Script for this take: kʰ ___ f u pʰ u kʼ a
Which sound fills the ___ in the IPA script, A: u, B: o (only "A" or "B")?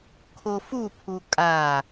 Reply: B